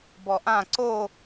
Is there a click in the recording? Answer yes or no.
yes